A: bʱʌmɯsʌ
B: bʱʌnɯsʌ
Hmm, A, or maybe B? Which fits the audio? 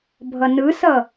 B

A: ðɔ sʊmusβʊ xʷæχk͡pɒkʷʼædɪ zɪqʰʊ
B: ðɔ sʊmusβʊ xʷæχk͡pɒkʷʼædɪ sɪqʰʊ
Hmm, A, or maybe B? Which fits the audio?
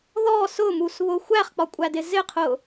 A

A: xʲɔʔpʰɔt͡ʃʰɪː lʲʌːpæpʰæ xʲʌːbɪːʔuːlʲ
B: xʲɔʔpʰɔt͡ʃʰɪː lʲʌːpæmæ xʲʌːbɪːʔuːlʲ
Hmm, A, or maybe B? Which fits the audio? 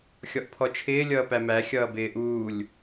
B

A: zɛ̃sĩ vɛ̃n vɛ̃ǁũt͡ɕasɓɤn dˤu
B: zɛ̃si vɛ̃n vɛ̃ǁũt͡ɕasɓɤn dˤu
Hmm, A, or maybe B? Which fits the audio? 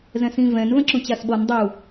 A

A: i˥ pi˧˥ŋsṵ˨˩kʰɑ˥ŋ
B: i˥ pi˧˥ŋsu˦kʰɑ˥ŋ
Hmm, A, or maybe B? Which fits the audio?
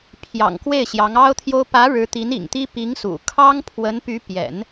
A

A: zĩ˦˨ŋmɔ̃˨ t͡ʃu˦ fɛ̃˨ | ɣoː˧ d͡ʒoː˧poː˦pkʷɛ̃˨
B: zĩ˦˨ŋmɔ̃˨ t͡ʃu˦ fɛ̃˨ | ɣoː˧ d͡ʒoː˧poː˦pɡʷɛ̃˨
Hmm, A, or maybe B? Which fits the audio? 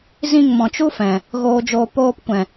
A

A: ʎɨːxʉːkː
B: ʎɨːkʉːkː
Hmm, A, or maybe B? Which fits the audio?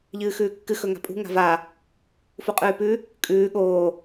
A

